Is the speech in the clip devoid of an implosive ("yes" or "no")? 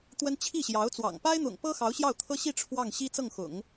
yes